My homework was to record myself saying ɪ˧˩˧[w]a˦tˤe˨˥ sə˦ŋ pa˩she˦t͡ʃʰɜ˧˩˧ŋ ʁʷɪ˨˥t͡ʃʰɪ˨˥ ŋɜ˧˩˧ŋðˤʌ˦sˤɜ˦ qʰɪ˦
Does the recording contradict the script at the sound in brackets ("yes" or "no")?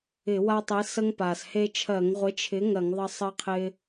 no